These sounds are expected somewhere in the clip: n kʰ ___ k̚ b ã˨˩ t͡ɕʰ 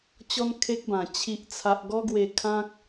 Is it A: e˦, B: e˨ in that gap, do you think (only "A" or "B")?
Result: A